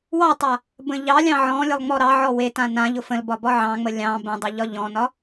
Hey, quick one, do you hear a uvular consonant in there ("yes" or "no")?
no